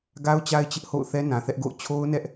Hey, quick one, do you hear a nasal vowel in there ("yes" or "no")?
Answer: yes